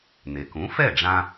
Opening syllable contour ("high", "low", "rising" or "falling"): low